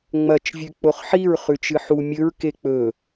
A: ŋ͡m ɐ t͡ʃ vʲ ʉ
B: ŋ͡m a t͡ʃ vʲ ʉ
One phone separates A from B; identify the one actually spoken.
A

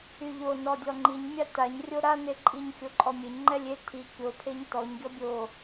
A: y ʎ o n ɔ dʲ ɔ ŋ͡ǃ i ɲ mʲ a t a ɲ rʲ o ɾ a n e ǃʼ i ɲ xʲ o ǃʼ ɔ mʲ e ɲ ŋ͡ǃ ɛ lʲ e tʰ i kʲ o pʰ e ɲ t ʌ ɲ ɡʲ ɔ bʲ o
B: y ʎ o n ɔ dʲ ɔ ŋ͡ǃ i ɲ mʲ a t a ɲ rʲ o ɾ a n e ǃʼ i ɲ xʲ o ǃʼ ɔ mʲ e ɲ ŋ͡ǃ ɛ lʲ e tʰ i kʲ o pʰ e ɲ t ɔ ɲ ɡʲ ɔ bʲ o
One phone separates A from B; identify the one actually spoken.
B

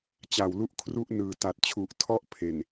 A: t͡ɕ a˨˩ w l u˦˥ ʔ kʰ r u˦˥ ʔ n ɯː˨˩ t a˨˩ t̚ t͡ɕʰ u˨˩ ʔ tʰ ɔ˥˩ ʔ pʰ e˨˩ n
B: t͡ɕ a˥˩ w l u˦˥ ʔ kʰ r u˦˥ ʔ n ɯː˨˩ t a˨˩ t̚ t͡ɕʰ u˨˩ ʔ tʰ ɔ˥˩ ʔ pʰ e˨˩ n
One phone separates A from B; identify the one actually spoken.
A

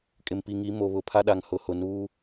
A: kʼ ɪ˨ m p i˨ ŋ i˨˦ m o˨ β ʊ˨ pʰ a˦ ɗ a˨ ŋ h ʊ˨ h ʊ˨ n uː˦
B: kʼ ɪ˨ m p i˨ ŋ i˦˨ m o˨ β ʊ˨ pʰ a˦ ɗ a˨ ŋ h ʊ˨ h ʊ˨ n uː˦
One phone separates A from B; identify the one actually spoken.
A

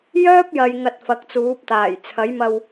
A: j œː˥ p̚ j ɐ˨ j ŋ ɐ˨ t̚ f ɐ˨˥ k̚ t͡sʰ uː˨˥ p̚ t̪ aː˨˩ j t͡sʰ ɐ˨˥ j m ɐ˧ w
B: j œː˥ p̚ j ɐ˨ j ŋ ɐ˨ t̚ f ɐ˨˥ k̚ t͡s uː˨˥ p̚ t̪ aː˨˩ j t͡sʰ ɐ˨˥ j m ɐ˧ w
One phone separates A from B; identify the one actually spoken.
B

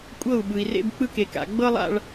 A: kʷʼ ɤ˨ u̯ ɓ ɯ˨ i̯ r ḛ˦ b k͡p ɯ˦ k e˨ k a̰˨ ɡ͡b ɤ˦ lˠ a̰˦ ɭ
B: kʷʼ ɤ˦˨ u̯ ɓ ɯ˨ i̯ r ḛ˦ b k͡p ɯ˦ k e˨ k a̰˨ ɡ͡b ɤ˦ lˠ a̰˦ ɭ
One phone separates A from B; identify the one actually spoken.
B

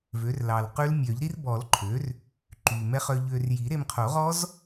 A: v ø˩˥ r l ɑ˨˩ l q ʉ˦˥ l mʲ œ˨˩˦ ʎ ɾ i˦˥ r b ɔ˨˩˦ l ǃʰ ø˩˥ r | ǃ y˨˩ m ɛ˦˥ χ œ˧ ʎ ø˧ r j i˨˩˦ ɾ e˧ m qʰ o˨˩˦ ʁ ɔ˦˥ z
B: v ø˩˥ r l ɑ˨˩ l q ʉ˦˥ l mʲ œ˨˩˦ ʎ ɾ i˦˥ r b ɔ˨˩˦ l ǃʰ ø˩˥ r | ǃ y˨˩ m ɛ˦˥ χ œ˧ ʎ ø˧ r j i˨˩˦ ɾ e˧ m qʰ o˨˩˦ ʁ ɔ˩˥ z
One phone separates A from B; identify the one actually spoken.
A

